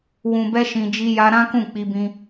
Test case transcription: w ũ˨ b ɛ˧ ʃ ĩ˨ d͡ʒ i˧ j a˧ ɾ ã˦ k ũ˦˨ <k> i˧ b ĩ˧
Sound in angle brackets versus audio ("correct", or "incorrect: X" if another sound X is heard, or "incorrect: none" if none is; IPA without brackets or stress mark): incorrect: k͡p